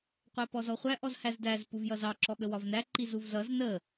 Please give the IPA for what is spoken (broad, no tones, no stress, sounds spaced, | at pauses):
qʷ æ p ɔ z ɔ χʷ æ ʔ ɔ z h æ z d æ z p u v j ʌ z ɑ ǁ ɔ ɠ ə w ɒ v n æ ǃ i z u v z ʌ z n ə